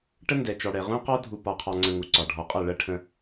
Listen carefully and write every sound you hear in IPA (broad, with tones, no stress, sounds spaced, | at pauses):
ʈ ə˦ n d ɛ˨ t͡ʃ ɔ˨ ɽ ɛ˨ ʁ ũ˦ q ɔ˦ dʱ u˨ p ɒ˨ qʰ ɑ˨ ŋ͡ǀ ə̃˨ ŋ u˨ ǀ ɒ˨ ɖʱ ɔ˨ qʼ ʌ˦˨ ɭ ɜ˦ ʈʰ ə̃˦